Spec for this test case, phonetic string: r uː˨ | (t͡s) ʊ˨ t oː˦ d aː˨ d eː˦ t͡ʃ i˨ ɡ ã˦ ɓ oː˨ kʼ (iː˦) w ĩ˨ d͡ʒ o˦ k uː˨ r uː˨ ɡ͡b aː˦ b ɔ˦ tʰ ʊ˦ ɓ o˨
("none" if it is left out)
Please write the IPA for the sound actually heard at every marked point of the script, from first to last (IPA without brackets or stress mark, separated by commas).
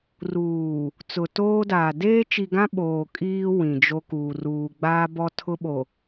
t͡s, iː˦